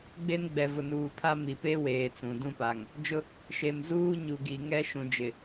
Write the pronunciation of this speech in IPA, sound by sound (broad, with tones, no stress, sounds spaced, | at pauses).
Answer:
ɡ͡b e˦ n ɡ͡b ɛ˨ v ʊ˨ n uː˨ pʰ a˦ m i˨ p e˦ w eː˨ t͡s ũ˨ d ũ˦ p a˨ ŋ | d͡ʒ ʊ˦ | ʃ e˨ m z uː˦ ɲ u˨ ɡ i˨ ŋ ɛ˦ ʃ ũ˨ d͡ʒ ɪ˨